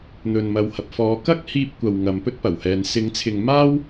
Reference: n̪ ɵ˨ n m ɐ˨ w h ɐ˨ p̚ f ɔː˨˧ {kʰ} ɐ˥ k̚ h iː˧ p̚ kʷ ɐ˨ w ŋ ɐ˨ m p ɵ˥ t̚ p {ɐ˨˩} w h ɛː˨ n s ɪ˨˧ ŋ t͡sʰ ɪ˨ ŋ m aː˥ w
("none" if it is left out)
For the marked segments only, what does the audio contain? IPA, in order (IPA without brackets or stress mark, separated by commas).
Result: k, ɐ˨˩